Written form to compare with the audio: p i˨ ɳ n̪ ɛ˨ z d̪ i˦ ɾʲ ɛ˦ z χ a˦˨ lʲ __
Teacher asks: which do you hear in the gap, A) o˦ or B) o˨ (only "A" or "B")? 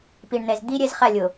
B